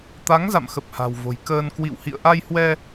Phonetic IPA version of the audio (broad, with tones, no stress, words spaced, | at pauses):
t̪a˨˦ŋza̰˧˨mxə˨˩p̚ha̤˨˩w vo̤˨˩jkəː˧n kwḭ˧˨whḭ˧˨ə̯ʔa˧jhwɛ˧